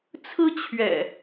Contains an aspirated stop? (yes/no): yes